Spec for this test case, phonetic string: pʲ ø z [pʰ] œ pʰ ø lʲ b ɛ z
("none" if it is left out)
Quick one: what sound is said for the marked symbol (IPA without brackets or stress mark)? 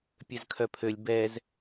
kʰ